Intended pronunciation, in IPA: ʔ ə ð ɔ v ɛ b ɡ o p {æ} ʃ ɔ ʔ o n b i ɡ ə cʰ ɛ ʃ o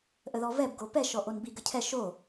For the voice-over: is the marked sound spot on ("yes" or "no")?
no